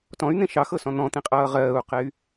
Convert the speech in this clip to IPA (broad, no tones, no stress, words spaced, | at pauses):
tɔ̃y̯n̪ẽ ʃɑxɤsɔ̃ n̪ɔ̃t̪ĩqʼʌː ʁɜːu̯qey̯